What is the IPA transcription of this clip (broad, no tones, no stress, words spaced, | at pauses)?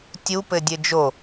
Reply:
tʲupɘ dʲɘd͡ʒo